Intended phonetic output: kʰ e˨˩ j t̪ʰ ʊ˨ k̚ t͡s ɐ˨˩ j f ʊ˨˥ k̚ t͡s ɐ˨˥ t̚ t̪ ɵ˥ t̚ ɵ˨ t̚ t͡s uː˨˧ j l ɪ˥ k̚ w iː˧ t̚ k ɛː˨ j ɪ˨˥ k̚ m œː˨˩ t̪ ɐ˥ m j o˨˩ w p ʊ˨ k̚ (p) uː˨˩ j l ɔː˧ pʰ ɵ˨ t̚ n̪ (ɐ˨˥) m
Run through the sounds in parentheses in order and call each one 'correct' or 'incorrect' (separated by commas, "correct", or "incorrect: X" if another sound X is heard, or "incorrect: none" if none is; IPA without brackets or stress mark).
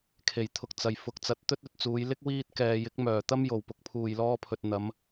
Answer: incorrect: pʰ, incorrect: ɐ˨˧